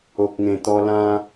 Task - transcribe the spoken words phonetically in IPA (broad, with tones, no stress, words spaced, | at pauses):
o˨k̚ŋẽ˨˩t̪ɔ˧ lã˦